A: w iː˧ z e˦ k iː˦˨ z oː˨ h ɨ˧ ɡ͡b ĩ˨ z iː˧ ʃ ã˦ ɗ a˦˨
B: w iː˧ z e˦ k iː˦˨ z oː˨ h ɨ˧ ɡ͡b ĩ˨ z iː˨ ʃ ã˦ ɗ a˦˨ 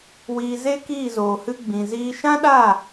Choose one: A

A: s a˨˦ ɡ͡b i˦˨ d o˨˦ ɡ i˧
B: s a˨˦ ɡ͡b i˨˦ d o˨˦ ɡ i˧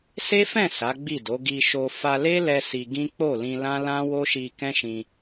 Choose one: A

